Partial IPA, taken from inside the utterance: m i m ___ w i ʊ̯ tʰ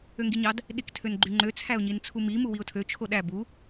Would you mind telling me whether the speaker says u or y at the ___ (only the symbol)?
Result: u